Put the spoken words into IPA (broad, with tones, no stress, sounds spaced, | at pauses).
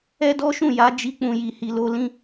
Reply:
ɛ˦ d ɔ˦ ʃ ũ˦˨ j a˨˦ d͡ʒ i˧ k͡p ũ˨ j i˨ h i˨ l o˧ l ĩ˧